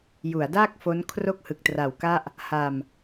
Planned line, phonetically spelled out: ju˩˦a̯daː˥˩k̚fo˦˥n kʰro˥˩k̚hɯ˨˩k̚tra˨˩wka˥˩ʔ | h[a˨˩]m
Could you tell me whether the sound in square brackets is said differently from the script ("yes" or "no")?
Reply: yes